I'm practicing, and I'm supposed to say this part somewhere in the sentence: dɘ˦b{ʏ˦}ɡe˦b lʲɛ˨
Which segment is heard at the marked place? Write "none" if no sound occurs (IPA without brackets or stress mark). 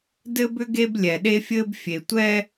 ʏ˦